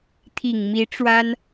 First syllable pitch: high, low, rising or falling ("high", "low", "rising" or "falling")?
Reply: low